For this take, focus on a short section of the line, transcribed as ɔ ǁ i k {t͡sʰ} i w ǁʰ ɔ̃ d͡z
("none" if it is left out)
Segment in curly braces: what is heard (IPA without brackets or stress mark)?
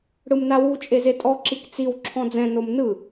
t͡s